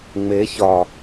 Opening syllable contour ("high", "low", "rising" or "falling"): rising